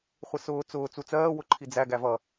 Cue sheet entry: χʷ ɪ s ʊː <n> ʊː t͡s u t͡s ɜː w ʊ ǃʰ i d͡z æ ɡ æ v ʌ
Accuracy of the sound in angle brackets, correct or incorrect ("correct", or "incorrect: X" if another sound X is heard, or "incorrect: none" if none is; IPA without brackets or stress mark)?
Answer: incorrect: t͡s